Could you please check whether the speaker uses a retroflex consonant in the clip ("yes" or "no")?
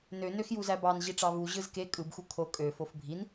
yes